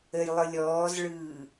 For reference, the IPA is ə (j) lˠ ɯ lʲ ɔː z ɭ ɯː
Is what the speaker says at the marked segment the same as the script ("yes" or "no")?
yes